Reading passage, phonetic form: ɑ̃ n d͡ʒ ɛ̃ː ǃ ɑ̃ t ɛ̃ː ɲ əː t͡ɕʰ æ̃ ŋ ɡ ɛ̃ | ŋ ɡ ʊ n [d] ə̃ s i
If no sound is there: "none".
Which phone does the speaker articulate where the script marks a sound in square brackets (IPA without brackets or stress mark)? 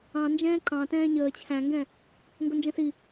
d͡ʒ